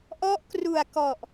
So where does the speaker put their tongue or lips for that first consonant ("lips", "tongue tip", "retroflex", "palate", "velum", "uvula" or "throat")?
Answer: throat